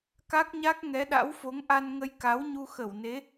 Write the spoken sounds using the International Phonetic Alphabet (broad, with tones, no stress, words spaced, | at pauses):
ka˦˥k̚ɲa˦˥k̚ ŋɛ˨˦ɗa̰˧˥wfo˨˦ŋ ʔa˧nŋə˧jka˨˦wɲu˧ xə˧˩wne˨˦